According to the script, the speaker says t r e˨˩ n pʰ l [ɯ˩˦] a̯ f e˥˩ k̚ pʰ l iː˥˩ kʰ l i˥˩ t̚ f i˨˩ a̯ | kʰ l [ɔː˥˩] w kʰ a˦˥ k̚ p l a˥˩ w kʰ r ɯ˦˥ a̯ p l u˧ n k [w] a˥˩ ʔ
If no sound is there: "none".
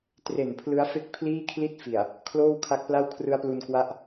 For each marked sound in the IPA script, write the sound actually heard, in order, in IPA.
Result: ɯ˦˥, oː˥˩, w

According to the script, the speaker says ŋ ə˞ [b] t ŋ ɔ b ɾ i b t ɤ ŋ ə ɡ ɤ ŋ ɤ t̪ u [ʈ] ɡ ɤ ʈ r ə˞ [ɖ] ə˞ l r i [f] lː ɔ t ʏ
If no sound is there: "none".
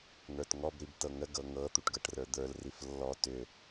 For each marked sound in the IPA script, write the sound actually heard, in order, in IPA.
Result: none, ʈ, d̪, f

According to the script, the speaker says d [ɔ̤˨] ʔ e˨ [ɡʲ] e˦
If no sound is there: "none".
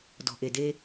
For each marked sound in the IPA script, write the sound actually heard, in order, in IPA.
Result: ɔ̤˨, d

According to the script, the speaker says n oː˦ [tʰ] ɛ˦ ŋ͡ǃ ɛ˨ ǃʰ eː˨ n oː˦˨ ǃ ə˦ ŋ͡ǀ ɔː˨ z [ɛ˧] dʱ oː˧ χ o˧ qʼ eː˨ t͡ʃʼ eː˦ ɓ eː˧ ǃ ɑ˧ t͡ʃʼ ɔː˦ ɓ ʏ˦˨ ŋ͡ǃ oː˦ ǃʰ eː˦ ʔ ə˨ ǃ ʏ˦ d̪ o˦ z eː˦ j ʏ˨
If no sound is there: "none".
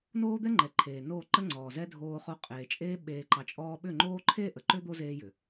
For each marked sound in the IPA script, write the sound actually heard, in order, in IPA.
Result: d̪, ɛ˦

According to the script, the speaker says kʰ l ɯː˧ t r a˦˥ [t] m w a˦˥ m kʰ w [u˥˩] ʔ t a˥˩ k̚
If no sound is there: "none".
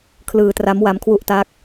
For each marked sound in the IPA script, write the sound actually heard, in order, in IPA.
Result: none, u˥˩

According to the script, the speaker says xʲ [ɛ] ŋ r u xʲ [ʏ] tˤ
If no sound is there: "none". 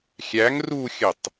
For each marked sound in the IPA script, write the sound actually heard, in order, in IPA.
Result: æ, ə

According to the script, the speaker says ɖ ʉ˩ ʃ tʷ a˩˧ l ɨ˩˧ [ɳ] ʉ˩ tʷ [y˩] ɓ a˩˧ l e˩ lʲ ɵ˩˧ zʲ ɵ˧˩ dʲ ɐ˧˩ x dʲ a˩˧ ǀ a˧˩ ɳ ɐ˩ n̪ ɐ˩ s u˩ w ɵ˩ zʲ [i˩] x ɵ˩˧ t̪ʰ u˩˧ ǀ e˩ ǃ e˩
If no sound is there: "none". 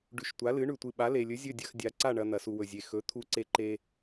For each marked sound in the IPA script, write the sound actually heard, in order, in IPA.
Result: ɳ, ɨ˩, e˩

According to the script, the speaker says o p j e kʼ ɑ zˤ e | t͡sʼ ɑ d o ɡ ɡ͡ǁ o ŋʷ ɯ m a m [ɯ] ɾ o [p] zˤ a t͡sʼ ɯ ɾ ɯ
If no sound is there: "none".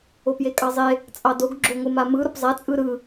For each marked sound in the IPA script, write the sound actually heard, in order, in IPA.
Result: ɯ, p

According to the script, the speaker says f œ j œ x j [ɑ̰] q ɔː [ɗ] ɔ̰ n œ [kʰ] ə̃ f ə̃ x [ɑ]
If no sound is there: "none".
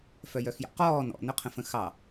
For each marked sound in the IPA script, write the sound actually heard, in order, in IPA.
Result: ɑ̰, n, qʰ, ɑ

